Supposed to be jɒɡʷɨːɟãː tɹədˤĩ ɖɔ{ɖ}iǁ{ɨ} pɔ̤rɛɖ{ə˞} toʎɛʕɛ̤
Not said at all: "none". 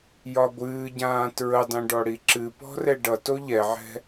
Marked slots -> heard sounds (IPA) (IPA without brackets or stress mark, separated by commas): ɽ, ɨ, ʌ